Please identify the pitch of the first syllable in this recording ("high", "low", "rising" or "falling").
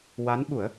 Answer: rising